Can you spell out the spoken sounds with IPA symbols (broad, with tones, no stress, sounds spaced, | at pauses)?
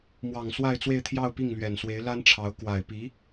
m w ɑ˨˩ ŋ s w a˥˧ ɪ̯ t͡s w e˥˧ ɪ̯ t̪ʰ j ɑ˥˧ ʊ̯ p i˥˩ ŋ l ɥ ɛ˨˩ n s w e˧˥ ɪ̯ l a˥ n ʈ͡ʂʰ ɑ˧˥ ʊ̯ k w a˨˩ ɪ̯ p i˧˥